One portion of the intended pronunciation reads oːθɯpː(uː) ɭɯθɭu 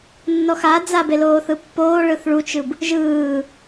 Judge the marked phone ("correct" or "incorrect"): incorrect